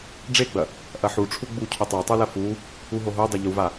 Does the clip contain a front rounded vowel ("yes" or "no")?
no